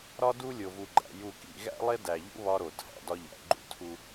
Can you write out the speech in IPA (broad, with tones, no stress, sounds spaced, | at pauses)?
ɾ ɒ˦ d u˦ lʲ o˨ v u˨ ɡ͡ǃ æ̰˨ j u˨ k ḭ˦˨ ɣ æ̰˦ lˠ e˦ d æ˨ ʎ ṵ˦ β ɒ˦ ɾ o˨ tʰ æ̰˨ d ɒ˦ ʎ æ̰˨ ɡ͡ǃ ṵ˦˨ tʰ u˦